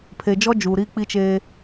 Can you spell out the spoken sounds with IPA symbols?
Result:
pʰe˨d͡ʒɔ˦d͡ʒuː˨ ɾi˦k͡pi˦t͡ʃeː˦

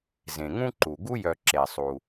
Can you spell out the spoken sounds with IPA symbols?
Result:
zẽ˩ŋũ˦ǃu˩ɡu˦ jœ˨ ǁe˩sˤu˩

